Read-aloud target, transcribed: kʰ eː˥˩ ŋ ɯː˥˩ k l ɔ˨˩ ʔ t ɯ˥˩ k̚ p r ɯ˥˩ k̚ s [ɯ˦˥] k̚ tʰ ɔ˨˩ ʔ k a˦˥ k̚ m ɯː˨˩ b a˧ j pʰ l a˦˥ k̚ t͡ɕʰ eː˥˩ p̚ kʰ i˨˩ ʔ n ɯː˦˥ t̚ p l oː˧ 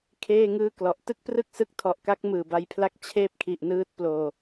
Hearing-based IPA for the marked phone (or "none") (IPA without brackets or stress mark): ɯ˦˥